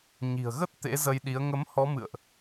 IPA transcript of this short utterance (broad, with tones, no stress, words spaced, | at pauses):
ɲi̤˨˩ə̯ɣə˦˥t̚ t̪ḛ˧˥zə˧jɗi˨˦ə̯ ŋə˨˦mhɔ˨˦ mɨ̰˧˨ə̯ʔ